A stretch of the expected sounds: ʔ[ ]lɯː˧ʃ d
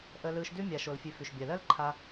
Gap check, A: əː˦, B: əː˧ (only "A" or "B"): B